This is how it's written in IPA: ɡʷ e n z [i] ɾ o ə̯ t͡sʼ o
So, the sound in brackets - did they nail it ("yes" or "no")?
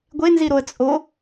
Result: yes